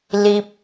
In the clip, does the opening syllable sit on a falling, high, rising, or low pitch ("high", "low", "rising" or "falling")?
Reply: high